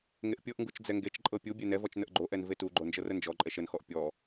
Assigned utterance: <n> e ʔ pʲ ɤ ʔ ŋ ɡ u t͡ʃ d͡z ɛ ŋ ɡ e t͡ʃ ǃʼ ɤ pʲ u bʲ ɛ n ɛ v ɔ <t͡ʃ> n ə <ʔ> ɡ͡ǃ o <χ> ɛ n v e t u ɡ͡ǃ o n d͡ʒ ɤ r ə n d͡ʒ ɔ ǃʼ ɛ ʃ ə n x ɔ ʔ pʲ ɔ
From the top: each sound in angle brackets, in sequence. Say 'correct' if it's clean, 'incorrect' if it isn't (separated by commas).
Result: incorrect, correct, correct, incorrect